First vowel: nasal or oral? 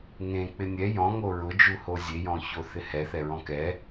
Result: nasal